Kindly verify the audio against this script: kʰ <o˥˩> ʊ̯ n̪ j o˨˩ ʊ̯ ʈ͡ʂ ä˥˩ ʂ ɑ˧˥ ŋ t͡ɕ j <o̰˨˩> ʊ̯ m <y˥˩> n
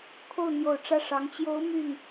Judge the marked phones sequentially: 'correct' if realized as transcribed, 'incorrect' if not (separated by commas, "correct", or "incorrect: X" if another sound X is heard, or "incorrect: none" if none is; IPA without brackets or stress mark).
correct, incorrect: o˧˥, correct